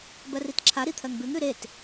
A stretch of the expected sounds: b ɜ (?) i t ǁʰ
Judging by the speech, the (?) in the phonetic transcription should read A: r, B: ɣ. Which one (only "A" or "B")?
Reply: A